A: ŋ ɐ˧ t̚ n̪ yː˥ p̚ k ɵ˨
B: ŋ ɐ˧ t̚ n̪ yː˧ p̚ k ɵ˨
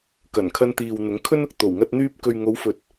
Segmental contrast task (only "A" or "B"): B